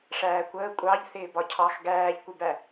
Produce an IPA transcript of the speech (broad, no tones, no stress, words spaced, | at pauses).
ʂæːkʷəː kʷʼɑʎ θɪːbɒcʰɑx ɡæːʎkʷɪbæ